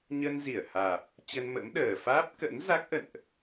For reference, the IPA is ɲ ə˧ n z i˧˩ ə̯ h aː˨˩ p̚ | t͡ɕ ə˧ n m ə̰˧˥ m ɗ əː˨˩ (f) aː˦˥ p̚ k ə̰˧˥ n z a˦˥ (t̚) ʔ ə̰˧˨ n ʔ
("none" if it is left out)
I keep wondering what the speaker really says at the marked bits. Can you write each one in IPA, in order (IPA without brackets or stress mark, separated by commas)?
f, k̚